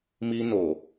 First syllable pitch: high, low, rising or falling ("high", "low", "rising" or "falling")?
high